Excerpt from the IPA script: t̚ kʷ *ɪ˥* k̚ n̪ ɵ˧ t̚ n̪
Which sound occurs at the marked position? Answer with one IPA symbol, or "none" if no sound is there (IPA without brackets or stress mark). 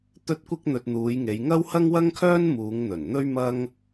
ɪ˥